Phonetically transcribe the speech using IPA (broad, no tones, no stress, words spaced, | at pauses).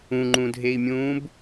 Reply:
ũŋ͡ǃũdʱei̯mʲũːb